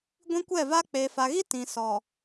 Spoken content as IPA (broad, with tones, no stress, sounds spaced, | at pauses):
ɡʷ ĩ˦ kʷ ɛ˦˨ v a˦ k͡p eː˨ f a˨ ɣ i˦ t ĩ˨ s ɔ˨